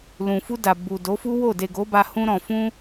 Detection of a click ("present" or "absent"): absent